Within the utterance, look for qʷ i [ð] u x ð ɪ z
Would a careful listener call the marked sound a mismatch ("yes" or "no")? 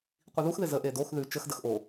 no